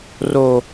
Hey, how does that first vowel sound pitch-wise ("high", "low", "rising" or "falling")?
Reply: low